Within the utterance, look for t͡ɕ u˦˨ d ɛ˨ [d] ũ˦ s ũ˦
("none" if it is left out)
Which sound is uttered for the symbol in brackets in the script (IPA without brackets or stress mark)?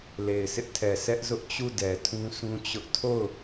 tʰ